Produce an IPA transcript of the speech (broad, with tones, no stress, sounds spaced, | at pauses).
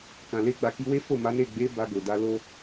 k ã˨ l e˧ ɡ͡b a˨ k i˧ w e˦ f o˦˨ m a˨˦ n e˦˨ ɡ͡b e˨˦ b a˧ ɡ o˨ d a˧ l o˦